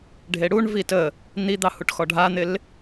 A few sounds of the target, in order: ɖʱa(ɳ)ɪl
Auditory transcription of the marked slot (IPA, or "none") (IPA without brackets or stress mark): n̪